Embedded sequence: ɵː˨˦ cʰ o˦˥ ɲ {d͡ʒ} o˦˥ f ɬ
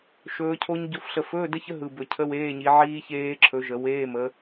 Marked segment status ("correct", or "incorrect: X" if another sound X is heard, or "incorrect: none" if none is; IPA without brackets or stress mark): incorrect: ɟ